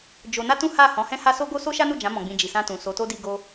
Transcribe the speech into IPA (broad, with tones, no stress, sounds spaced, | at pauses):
d͡ʒ o˧ n a˦ t ũ˦ h a˦˨ h ɔ̃˨˦ h ɛ̃˦ h a˦ s o˦ ɡ o˦ s o˦ ʃ a˦ n u˦˨ d͡ʒ ã˨˦ m ɔ̃˧ ɡ͡b ĩ˧ d͡ʒ i˨ s ã˧ t ũ˨ s o˨˦ t o˦ d i˧ ɡ o˧